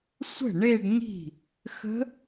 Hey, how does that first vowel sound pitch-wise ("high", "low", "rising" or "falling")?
falling